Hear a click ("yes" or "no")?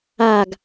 no